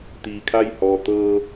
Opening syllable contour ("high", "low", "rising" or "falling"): low